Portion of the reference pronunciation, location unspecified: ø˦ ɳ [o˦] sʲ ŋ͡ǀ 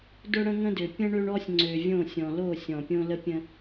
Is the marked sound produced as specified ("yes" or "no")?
no